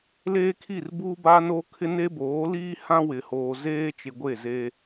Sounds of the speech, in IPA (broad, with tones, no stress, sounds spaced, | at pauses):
l eː˦ kʰ i˦˨ r b uː˦ b aː˦ n oː˦ kʰ ɪ˦ n e˦ b oː˨˦ l iː˦ h ã˦ w ɪ˨ h oː˨ z eː˦ t͡ʃ ɪ˨ ɡʷ e˦˨ z e˦